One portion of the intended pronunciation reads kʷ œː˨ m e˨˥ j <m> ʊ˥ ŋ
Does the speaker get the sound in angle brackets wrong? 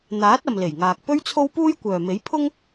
yes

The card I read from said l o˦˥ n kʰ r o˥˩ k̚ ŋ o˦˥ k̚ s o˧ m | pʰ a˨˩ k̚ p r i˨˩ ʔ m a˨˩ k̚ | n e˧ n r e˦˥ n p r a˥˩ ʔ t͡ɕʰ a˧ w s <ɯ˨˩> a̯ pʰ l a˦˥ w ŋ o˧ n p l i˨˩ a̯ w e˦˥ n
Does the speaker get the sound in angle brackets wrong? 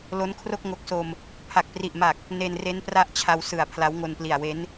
no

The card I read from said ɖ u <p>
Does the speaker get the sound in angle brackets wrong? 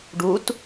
yes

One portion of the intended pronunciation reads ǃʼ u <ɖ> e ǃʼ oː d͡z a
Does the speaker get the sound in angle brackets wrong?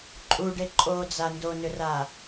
no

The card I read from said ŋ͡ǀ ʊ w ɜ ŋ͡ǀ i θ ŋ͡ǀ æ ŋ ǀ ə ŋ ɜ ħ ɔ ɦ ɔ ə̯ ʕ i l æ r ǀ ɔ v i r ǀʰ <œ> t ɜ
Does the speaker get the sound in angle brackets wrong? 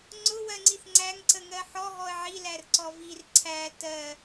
yes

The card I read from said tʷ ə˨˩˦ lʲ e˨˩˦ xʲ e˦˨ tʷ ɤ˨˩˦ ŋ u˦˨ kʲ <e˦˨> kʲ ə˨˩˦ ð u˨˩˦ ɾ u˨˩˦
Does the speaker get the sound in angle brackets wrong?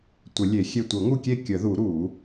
no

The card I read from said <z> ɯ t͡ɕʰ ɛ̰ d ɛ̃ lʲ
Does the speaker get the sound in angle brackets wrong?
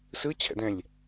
yes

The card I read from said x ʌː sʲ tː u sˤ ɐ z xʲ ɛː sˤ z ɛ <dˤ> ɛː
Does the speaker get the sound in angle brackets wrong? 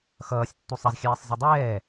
no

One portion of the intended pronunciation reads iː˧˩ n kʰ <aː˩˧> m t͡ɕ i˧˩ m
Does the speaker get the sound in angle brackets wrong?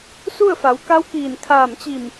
yes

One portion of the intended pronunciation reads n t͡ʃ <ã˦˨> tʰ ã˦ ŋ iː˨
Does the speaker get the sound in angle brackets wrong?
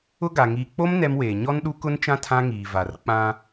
yes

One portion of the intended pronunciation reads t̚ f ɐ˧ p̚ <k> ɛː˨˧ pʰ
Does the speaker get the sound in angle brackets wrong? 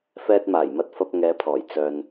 yes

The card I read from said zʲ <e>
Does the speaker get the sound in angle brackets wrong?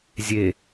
no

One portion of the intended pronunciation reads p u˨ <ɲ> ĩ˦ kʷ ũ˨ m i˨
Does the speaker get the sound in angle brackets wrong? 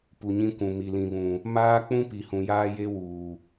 no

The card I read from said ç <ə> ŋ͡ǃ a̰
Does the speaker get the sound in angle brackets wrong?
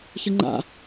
no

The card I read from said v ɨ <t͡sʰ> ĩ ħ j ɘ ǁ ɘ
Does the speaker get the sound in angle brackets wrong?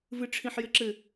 yes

